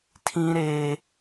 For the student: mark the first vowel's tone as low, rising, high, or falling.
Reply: high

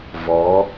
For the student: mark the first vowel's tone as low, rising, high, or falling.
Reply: rising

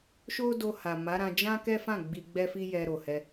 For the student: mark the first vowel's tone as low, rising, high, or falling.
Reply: high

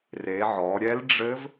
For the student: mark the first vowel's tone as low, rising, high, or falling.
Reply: rising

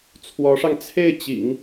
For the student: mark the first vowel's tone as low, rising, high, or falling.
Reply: rising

